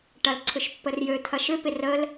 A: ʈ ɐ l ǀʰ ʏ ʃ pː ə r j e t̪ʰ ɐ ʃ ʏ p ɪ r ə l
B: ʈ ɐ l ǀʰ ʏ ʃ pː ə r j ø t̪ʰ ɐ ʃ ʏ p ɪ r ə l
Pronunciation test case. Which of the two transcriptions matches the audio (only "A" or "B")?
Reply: B